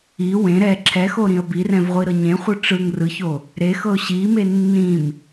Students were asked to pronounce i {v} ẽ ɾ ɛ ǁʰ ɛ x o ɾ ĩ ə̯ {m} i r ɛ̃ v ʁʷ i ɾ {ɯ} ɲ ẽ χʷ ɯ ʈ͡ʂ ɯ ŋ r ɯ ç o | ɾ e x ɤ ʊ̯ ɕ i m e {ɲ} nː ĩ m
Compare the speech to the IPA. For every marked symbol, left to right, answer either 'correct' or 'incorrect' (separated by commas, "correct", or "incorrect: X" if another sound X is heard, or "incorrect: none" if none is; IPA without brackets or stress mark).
incorrect: w, incorrect: b, incorrect: ɤ, incorrect: none